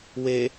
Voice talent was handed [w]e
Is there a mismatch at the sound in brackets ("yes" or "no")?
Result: no